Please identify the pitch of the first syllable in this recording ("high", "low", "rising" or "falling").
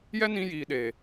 high